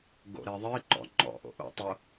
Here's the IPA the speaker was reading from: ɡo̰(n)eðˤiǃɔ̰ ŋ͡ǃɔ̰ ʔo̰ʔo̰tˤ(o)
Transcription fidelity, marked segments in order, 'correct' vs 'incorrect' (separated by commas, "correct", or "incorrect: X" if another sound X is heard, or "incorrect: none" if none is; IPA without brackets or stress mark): incorrect: ɾ, correct